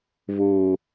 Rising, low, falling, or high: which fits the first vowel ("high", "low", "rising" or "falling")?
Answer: low